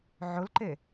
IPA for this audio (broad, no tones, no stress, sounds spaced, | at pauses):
ʕ ʊ l ǃ e